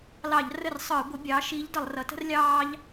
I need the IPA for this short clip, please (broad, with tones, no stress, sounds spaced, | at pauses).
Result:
l ɑ˧˩˧ ʎ r ə˥˩ r sˤ ə˞˧˩˧ ɡʷ ɪ˩˥ bʲ ɑː˩˥ ʃ iː˧˥ ʎ d ʌ˧˩˧ lˠ r ʌ˩˥ t ə̤˥ r lʲ ɑː˥ ʎ